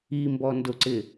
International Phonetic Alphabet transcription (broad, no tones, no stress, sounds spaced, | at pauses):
i m b ɔ n d ʊ ǀ ɪ